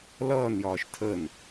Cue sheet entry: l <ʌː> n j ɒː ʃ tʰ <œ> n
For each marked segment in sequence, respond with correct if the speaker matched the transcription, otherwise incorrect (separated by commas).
correct, incorrect